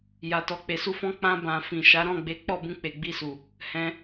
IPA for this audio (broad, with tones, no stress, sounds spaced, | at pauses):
j a˧ t ɔ˧ k͡p e˨ s u˧ f ɔ̃˧ k͡p ã˧ b ã˨ f ĩ˨ ʃ a˨˦ ɾ ɔ̃˦˨ ɡ͡b e˨˦ k͡p ɔ˦˨ b ũ˧ k͡p e˨ ɡ͡b i˧ s u˨ | h ɛ̃˧